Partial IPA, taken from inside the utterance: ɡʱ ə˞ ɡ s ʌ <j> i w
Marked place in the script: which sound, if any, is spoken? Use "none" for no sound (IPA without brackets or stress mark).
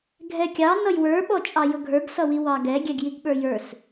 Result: w